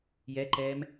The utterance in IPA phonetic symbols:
j ɛ ǃ ɛː m

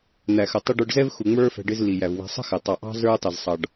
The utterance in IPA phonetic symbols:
n̪ æ˨ x ə˨ tˤ ɪ˦ ɖ ə˞˧ ɖ z ɛ˦ v x u˨ ŋ͡m ə˞˦ f ɛ̤˧ ɖ ɪ˦ z l i˨ j æ˨ v w ɛ̤˧ sˤ ə̤˦ x ɪ˨ tˤ ɑ˨ ʔ ɑ̤˦ z ə˞˦ tˤ ɪ˨ z sˤ ɑ˨ ɖ

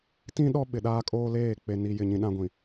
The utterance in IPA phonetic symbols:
t ĩ˦ ɗ ɔ˦ ɓ ɪ˨ ɗ aː˦ kʼ oː˦ l eː˦˨ k͡p e˨ n i˨ j ɪ˦˨ ɲ ĩ˦ ɗ ã˦ ɡʷ ĩ˨

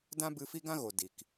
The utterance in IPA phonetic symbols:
d ã˦ b ɨ˧ f i˦ ɡ ã˦ ɣ o˨ d i˨ k

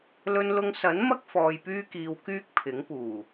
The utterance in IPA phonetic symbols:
l ɵ˧ n l ʊ˧ ŋ s ɐ˨˥ n m ɐ˥ k̚ f ɔː˧ j p yː˥ k iː˧ w k yː˥ k̚ pʰ ɪ˨˥ ŋ p uː˨˩

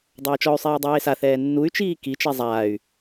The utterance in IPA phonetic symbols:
dˤ ɐː t͡ʃ ɔ y̯ sˤ iː dˤ eː s a θ ɛː nː u y̯ t͡ʃ iː k i t͡ʃ e zˤ aː y̯

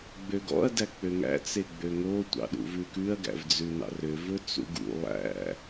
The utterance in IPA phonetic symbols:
ɡ͡b ø ɡ ɔ̰ ɐ̯ d æ k͡p ø ŋ æ̰ t͡s e ɡ͡b ø ŋ o tʷ ɑ̰ ɗ ṵ v ʉ k ʉ ɐ̯ ɡ æ̰ v d͡z ʉ n ɑ̰ r ø v ɵ t͡s ṵ ɡ ṵ lˠ æ̰

